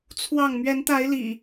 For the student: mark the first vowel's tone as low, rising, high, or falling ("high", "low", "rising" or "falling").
falling